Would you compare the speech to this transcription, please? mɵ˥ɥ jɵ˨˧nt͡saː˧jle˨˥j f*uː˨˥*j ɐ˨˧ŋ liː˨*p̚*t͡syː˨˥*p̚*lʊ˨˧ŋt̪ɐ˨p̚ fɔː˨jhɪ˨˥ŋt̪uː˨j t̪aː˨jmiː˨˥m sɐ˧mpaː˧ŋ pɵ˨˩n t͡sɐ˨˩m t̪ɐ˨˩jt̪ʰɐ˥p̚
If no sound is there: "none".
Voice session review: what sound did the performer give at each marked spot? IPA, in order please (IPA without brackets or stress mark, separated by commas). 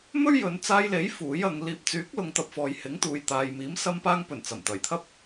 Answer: uː˨˥, p̚, k̚